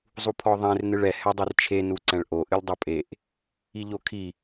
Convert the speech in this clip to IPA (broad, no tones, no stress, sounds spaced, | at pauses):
zˤ u pʰ ɔ ðˤ ẽ r n ɨ ɭ ɛ h ɛ dˤ i r t͡ʃʰ e n u ǀ ɛ̃ ɭ ʔ o ʔ ɨ lʲ dˤ o pʼ e ʔ | i ʎ o kʰ i